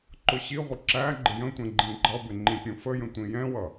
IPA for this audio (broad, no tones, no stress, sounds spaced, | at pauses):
ǃ ʊ ɕ i ʁʷ ɪ ǁ æ ɡ͡ǃ ɪ j ə̃ tʷ ɛ̃ ɡ͡ǃ ĩ ɡ͡ǃ ʌ b ɪ ŋ͡ǃ ĩ pʲ ũ f ə j ə̃ tʷ ĩ j ɛ̃ w ʌ